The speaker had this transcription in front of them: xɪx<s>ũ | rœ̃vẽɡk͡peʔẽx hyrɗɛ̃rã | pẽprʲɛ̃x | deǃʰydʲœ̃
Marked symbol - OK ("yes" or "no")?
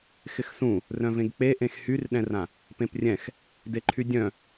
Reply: yes